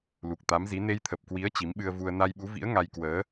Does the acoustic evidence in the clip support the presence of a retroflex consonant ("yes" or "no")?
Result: no